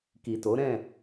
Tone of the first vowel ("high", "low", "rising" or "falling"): low